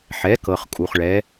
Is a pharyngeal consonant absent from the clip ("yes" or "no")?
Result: no